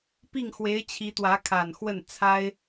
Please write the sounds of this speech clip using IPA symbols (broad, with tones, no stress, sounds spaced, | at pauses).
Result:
p i˥˩ ŋ x w e˧˥ ɪ̯ t͡ɕʰ i˧˥ t̪ w ä˧˥ kʰ a˨˩ n x w ə˥˩ n t͡sʰ a˥ ɪ̯